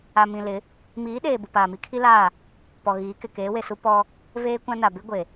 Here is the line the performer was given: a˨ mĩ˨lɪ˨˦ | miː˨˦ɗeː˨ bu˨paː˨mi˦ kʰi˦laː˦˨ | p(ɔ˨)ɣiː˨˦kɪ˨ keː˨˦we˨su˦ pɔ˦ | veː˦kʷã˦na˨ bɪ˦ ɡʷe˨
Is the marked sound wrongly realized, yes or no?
no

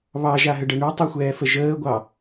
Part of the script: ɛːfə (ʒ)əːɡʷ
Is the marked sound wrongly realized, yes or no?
no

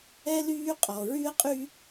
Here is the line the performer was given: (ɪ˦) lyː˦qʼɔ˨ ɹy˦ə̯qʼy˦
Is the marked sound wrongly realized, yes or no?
yes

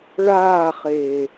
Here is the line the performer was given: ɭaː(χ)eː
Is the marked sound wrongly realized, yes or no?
no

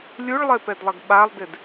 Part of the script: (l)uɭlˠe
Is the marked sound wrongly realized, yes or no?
yes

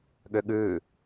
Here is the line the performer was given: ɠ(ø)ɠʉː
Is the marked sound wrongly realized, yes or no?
no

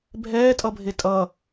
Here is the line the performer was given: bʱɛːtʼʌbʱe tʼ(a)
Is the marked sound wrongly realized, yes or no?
yes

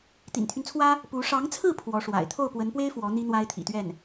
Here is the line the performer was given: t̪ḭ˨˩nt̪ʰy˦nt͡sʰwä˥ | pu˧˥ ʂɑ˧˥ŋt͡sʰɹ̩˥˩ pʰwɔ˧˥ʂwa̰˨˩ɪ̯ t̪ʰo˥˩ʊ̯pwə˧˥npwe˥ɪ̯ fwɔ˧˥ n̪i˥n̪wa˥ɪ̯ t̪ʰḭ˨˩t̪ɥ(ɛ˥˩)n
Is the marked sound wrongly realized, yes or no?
no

